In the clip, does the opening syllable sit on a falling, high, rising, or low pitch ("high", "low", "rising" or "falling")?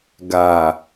low